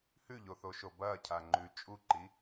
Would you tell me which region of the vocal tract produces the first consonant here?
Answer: throat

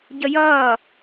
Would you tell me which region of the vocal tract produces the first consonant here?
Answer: palate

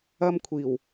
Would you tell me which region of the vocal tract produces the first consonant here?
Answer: lips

